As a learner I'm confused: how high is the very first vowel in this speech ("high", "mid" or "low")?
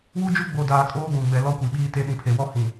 high